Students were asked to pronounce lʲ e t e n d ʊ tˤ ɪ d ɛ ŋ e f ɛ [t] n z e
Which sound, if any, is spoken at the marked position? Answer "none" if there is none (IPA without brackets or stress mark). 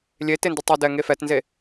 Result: t